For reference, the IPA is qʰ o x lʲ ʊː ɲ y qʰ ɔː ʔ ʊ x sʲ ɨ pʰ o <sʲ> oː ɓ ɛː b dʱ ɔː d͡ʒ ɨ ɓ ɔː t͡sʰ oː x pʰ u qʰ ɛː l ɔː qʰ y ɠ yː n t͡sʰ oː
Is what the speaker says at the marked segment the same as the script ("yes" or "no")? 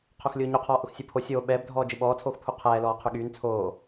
yes